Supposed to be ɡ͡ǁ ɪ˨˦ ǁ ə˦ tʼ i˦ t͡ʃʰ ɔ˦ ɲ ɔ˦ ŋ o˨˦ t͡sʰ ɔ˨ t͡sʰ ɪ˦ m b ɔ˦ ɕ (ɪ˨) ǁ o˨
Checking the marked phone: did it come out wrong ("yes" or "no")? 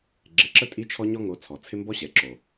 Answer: yes